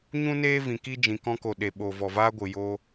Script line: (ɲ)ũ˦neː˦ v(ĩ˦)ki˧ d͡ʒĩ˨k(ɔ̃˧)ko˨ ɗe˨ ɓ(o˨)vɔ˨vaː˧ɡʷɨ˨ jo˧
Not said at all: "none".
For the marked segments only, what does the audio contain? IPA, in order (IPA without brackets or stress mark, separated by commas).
ɲ, ĩ˨, ɔ̃˧, o˨